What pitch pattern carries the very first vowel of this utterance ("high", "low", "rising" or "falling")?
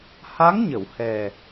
rising